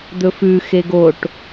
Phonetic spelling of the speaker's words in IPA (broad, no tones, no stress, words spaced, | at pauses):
d̪ɵfʉ xeɡoʈ